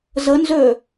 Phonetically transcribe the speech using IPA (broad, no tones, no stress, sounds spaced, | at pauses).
z ə n z ø